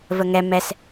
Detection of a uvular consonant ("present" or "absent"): absent